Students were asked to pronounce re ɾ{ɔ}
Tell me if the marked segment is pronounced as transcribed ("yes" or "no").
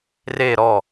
yes